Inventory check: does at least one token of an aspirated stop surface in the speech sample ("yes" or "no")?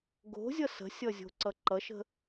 no